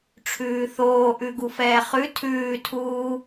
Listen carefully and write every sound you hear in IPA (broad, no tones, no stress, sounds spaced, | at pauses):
ʈ͡ʂʰ ʉː θ oː ʔ ʉ ɡ u f ɛː χ ʉ tʰ ʉː tʰ uː